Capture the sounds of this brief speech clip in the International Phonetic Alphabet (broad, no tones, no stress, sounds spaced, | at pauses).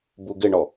b u ɡ ɪ ɳ ɔ